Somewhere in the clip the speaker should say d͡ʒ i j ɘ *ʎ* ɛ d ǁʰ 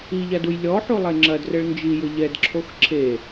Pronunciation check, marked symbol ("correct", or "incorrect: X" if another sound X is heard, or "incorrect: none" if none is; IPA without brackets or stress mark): correct